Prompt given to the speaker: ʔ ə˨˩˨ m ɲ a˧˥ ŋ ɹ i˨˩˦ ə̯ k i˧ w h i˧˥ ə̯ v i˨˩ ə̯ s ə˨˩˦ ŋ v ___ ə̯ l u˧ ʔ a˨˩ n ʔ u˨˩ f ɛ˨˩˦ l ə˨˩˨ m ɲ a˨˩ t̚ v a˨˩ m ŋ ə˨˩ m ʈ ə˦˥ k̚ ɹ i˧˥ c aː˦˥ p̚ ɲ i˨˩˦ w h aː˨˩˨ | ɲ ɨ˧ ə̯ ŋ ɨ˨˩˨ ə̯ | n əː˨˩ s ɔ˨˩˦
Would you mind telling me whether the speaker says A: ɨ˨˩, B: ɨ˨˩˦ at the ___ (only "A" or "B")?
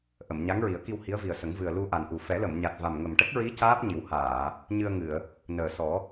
A